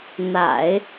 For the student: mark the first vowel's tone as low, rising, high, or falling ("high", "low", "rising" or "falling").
low